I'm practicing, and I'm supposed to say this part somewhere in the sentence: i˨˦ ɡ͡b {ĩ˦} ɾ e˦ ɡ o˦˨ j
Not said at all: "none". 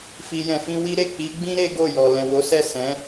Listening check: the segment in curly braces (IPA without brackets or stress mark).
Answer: ĩ˦